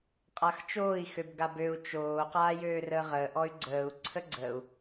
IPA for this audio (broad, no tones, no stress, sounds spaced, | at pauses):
qʼ a x t͡ʃ oː i̯ x ø b ɡ a b ø u̯ t͡ʃ oː q aː j øː r əː ʁ əː ʔ ɔ y̯ ɡ͡ǀ əː u̯ ǀʰ ə ɡ͡ǀ əː u̯